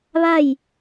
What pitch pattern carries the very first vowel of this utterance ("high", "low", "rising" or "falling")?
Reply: falling